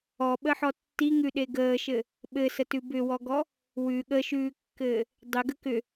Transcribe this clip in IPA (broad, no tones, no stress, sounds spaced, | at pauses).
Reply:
ɔ ɓ ə ħ ɔ tː i ŋ ʉ ɗ e ɡ əː ʃ ɘ | ɓ ɘ s ə t ʉ b ʏ w ɔ ɡ ɔ | w ʉ ɠ ə ʃ ʉː kː ɘː | dˤ ʏ ɡ ə k ʏ